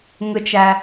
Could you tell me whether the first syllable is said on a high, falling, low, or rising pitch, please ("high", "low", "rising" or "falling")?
low